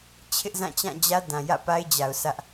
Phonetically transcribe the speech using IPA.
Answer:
t͡ɕʰ ɪ˦ ʔ z ã˦˨ t͡ɕ ã˦˨ d͡ʑ ä˦ d ã˨ j ä̰˦˨ p a˦ ɪ̯ d͡ʑ a˨ ʊ̯ s ä˦ ʔ

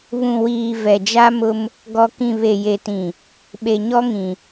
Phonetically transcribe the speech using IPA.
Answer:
β ũ˨ w iː˨ v ɛ˨ d͡ʒ a˦ m ʊ˦ m | ɡ ɔ˨ k ĩ˨ β e˨ j e˨ t ĩ˨ | ɓ e˨ ɲ ɔ˦ ŋ ĩ˨

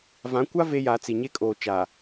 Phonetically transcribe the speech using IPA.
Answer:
v ã˨˦ kʷ a˦ v e˦ j a˨˦ t͡s i˨ ɲ e˦ kʼ oː˨ t͡ʃ aː˨

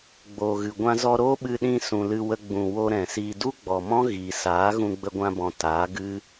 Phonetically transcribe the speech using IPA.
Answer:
ɡ͡b oː˨ ɣ ɨ˨ ɡʷ ã˧ z ɔ˧ ɾ oː˦ ɓ ɨ˧ ɗ ĩ˧ s ũ˨ l ɨ˧ w ə˧ ɡ͡b ũ˨ w o˧ ɾ ɛ̃˨ s iː˧ d u˦ ɡ͡b ɔ˨ m ɔ̃˦ ɣ iː˨ s aː˨˦ ɣ ũ˧ ɡ͡b ə˧ ɡʷ ã˧ b ɔ̃˨ t aː˨˦ ɡ ɨ˦

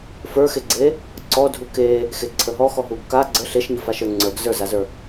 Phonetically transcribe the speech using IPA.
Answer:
f ə˞ x e ɡ͡ǀ e | ǀ ɔ dʱ u k e | x e ǀʰ ə ɦ ɔ x ɔ ɦ u ɡ k a ɡ͡ǀ ə ɬ e ʃ ɲ ə f a ʃ ə˞ ŋ͡ǀ ə˞ ɡ z ə˞ z a z ə˞

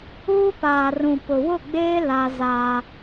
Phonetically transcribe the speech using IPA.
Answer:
uː˦ p aː˨ r ũ˨ p ʊ˨ w ʊ˦˨ ɡ͡b eː˦ l a˦ z a˦

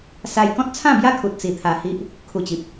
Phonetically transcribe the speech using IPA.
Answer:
s a˧ j k ɔ̃˦ t̚ t͡sʰ ã˥˧ b j a˦ kʰ u˨ t̚ t͡s i˧ t̪ʰ a˧ h i˦ ʔ | kʰ u˨˩ t͡ɕ i˨ p̚

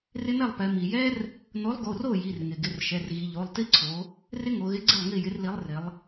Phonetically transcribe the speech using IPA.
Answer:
r ɪ˦ n ɛ˥˩ lˠ p ɛ˩˧ m i˩ j ɛ˦ r | n o˨˥ lˠ ɡ o˩˧˩ r o˥˩ j i˩˧˩ r ŋ ɪ˩ ɡ ɪ˩˧˩ r ʃ ɛ˩˧˩ r ɣ i˩˧ ʎ o˩˧˩ lˠ t i˦ ǀʰ o˩˧ | r ɪ˦ ŋ o˩˧ ɣ ɪ˨˥ ɡ͡ǀ ɪ˥˩ lˠ ŋ i˥˩ j ɪ˨˥ r l i˨˥ lˠ r ɪ˩˧ lˠ

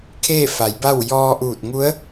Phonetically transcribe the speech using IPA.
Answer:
kʰ eː˥˨ f a˩˧ j b a˥˨ w j ɔː˧ ʔ uː˧˩ t̚ ŋ u˧˥ ə̯

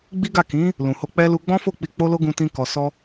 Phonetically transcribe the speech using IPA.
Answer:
ɡ͡b i˦ ɡ a˦˨ k ĩ˨˦ | l ũ˨ h o˧ k͡p ɛ˦ l u˧ ɡ͡b ɔ̃˦ f o˦˨ k͡p i˧ k͡p o˦ l o˦ ɡ ũ˧ t ĩ˧ k ɔ˨ s ɔ˧

